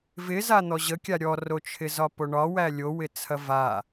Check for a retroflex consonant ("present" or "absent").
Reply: present